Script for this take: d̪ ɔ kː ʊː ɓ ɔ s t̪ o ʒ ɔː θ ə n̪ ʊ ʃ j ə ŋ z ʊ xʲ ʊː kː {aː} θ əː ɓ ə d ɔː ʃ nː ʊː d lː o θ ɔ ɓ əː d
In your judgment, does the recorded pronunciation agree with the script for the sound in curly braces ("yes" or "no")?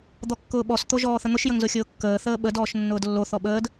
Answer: no